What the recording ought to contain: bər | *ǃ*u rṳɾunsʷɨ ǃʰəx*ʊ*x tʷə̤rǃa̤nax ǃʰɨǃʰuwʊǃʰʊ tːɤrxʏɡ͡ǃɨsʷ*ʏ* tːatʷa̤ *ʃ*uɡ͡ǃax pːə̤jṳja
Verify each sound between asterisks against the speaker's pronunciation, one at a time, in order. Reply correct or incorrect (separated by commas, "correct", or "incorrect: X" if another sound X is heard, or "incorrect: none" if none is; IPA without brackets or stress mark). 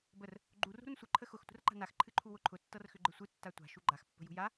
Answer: incorrect: ɡ͡ǃ, correct, incorrect: ɨ, correct